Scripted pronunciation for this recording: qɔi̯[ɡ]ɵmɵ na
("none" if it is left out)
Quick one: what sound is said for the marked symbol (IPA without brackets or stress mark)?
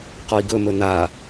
ɡ